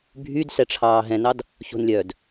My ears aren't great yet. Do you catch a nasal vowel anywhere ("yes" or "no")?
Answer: yes